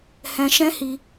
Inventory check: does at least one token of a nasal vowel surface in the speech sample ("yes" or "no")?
yes